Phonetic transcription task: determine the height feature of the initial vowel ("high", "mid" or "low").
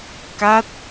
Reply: low